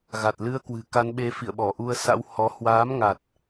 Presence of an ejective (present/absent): absent